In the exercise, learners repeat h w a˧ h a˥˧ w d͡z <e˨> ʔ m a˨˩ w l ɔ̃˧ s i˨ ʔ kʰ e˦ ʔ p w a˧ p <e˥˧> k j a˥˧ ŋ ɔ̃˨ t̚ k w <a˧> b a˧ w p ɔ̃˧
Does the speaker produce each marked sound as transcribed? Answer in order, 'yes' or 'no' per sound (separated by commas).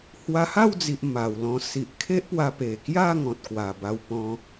no, no, no